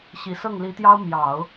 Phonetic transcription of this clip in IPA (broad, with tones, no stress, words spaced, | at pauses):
ɕi˨˩sɤ˥˩ŋli˧˥t̪jɑ˥ʊ̯ mjɑ˨˩˦ʊ̯